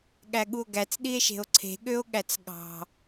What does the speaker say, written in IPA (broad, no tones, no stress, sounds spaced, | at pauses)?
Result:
ɠ æ ɠ u o̯ ɡ æ t͡s ɗ i e̯ ʃ e̤ o̯ ǀʰ e̤ ɠ ø o̯ ɠ æ t͡s ɠ ɑ̤